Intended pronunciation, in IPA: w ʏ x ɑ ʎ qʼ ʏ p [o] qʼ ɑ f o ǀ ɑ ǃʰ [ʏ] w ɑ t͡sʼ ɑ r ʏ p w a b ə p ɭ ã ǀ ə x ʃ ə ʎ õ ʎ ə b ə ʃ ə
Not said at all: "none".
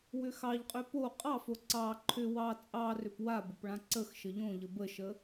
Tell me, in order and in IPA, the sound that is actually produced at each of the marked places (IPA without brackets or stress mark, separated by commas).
o, ʏ